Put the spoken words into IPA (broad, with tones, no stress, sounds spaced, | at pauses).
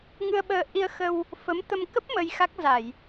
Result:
ŋ ɨ˧ ə̯ ɓ əː˧ ʔ i˧ ə̯ x ə˧ w | f ə˨˦ m t̪ ə˧ m k ə˦˥ p̚ m ə˧ j x a˦˥ k̚ z a˧˩˨ j